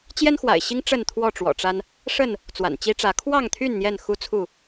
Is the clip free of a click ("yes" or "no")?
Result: yes